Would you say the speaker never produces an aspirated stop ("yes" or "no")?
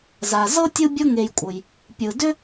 yes